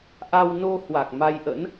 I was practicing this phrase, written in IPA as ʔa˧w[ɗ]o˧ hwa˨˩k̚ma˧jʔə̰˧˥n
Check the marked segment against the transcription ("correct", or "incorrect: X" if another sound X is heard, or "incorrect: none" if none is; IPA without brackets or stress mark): incorrect: n